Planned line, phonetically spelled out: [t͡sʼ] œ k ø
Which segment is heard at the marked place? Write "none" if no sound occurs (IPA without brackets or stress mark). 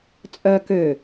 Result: t͡sʼ